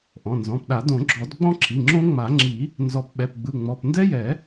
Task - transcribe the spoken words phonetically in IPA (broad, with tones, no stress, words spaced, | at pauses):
ʔɔ̃˩˧˩nzɔ̃˩˧˩pɗa˨˩˦ dõ˨˩˦ɡ͡ǁɔ˨˩˦dɡ͡bɔ̃˦˥ ǁʰi˩˧˩ŋ͡ǁõ˦˥ ŋ͡ma˨˩˦ŋ͡ǁi˨˩˦ | nzɔ˨˩˦pɓɛ˩˧˩pɡ͡bɯ˩˧˩ŋ͡mɔ˩˧˩p ndɛ˦˥jɛ˨˩˦